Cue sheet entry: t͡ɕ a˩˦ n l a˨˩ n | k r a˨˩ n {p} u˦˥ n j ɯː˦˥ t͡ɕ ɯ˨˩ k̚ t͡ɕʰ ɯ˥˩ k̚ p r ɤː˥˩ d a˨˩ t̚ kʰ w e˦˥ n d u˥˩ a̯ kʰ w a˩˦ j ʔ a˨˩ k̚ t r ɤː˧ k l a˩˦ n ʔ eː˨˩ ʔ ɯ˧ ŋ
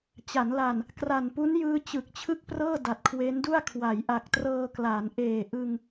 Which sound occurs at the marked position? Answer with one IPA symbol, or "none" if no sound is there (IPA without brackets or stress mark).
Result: p